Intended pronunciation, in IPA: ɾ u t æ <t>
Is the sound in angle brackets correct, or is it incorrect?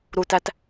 correct